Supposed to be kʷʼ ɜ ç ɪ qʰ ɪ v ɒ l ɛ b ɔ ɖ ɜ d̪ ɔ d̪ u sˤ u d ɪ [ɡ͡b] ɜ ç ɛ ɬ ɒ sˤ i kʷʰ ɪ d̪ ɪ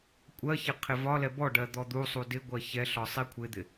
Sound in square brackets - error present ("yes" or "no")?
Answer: yes